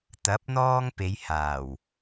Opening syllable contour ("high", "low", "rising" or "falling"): rising